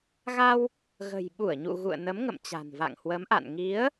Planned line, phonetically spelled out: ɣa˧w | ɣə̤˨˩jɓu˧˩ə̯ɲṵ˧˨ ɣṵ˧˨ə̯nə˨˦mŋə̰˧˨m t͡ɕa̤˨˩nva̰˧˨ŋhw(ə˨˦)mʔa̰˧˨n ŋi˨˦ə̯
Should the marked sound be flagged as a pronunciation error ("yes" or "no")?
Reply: no